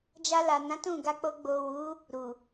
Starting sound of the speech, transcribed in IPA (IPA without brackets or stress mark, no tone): d͡ʒ